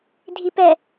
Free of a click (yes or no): yes